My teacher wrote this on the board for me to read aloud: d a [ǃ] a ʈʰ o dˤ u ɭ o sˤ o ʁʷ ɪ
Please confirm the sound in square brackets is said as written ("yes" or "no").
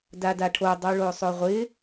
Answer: no